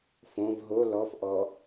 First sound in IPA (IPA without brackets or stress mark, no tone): f